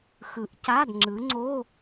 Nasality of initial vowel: oral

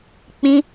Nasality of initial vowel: nasal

